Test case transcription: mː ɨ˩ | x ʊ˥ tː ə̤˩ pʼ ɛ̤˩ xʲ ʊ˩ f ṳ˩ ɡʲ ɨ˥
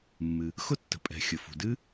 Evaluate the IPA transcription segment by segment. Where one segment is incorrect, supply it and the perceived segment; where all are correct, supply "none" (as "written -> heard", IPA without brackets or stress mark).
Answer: ɡʲ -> d